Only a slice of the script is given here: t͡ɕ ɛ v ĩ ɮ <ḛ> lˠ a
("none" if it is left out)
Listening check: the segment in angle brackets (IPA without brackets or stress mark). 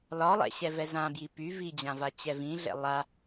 ɛ̰